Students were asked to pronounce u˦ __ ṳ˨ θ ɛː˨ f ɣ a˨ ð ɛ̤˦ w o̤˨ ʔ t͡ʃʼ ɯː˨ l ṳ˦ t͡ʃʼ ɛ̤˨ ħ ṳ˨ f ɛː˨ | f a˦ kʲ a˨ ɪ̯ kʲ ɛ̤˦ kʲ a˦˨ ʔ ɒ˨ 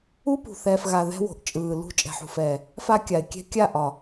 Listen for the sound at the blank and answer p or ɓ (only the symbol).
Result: p